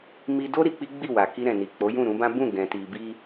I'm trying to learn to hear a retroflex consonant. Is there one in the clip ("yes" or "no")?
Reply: no